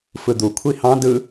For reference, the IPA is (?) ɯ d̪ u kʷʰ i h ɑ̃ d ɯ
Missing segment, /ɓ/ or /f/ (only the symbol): f